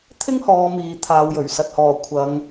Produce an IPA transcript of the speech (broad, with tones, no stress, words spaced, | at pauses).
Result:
t̪ʰɪ˥ŋhɔː˨˧ miː˨˧t̪ʰaː˨˧wjɵ˨˩ɥ sɐ˨t̚hɔː˨˩ kʷʰɐ˨˧ŋ